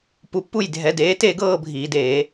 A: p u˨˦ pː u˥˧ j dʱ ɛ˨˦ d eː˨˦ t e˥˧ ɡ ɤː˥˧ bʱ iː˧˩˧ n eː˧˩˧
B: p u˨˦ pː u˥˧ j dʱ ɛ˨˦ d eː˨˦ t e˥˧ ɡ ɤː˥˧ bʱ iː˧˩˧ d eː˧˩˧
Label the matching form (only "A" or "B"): B